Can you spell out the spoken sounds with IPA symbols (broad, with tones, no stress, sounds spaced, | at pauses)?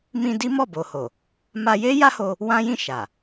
m ĩ˧ d i˦ m ɔ˦˨ b o˨ h o˨ | m a˧ j e˦ j a˦ h o˧ | w ã˦ j ĩ˦˨ ʃ a˨